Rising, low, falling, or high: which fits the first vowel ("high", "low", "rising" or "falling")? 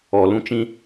low